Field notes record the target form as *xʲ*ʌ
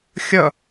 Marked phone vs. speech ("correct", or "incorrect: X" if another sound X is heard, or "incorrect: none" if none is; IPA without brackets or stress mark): correct